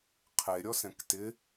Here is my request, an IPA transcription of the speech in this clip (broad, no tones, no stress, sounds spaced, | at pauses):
qʰ e ɾʲ ɔ s ɛ̃ k t ɪ